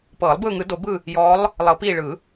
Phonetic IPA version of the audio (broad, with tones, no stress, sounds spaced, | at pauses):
p ɤː˨˩˦ lˠ b ɯː˦˨ ŋ ɯ˨˩˦ d o˨˩˦ b ɯ˦˨ | j ɔː˨˦ lˠ | lˠ ɤ˨˩˦ p iː˦˨ ɭ ɯ˨˩˦